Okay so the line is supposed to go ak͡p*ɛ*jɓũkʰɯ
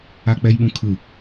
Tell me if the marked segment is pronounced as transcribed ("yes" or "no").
yes